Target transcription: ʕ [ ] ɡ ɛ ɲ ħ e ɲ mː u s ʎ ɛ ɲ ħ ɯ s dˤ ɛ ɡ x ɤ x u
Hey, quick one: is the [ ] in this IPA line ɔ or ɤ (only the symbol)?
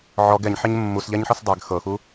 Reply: ɔ